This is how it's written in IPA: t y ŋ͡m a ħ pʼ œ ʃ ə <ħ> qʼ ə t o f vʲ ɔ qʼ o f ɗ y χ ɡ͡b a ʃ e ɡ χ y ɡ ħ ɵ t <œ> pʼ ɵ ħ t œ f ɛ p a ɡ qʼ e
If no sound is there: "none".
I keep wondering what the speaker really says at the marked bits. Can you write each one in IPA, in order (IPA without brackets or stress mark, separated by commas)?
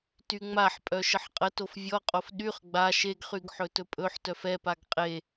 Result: ħ, ɵ